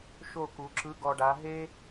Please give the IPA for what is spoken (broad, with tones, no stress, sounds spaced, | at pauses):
ʃ o˦˨ k u˩˧ ǁ ɯ˨˥ ɡ ɔ˨˩ ɖ a˩˧ ɦ e˦